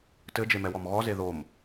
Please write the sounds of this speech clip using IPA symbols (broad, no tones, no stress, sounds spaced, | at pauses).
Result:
t ɘ d͡ʒ e m ɛ w ɔ m ɣ ɔ z e ð o m